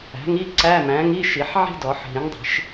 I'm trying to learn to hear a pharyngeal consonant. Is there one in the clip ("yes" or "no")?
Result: yes